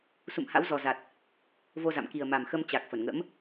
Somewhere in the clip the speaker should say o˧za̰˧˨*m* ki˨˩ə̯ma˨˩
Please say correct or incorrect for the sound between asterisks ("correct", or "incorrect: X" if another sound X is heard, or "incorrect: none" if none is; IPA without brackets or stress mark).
correct